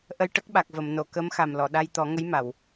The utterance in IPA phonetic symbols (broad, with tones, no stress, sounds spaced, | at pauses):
ʔ ə˧ j ʈ ə˦˥ k̚ ɓ a˨˩ k̚ v ə˨˩˨ m n o˨˩˨ k ə˧˥ m x a˨˩ m l ɔ˨˩˨ ɗ a˧ j t̪ ɔ˨˩˦ ŋ ə˧˥ j m a˨˩˨ w